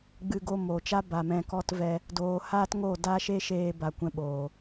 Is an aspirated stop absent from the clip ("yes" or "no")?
yes